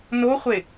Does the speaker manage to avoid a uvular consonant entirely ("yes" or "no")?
no